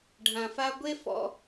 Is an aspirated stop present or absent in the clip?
absent